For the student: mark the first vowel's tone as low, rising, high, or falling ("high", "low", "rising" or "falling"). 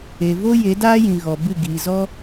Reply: low